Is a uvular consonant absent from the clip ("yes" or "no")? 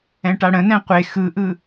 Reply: no